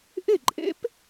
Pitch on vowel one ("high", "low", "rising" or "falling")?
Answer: falling